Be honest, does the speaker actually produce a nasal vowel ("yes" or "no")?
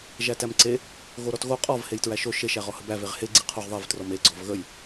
no